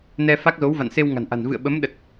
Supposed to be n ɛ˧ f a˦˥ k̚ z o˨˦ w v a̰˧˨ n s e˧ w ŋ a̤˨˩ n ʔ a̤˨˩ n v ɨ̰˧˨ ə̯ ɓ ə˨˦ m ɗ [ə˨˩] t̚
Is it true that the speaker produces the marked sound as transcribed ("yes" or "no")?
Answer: yes